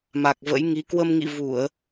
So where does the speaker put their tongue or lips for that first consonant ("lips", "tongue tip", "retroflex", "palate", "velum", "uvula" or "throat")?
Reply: lips